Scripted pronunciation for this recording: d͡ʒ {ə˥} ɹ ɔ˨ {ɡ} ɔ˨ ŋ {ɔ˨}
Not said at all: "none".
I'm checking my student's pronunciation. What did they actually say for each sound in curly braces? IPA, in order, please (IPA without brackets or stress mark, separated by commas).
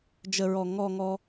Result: ə˨, ŋ, ɔ˥